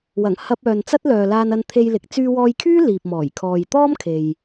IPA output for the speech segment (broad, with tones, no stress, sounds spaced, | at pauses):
w ɐ˨˩ ŋ h ɐ˧ p̚ œː˨ n t͡s ɐ˥ t̚ l œː˨ l aː˧ n ɐ˧ n t̪ʰ e˧ j l ɪ˨˥ k̚ t͡s yː˧ w ɔː˧ j kʰ yː˥ l iː˨ p̚ m ɔː˨˩ j kʰ ɔː˨ j t̪ ɔː˥ m kʰ e˨ j